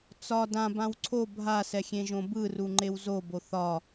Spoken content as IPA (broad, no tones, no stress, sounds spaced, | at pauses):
t͡s ɒ d ã b ã w ǀʰ o bʱ a s ɛ xʲ ẽ ʒ õ b ɯ r u ŋ͡ǃ e w z o b o θ ɒ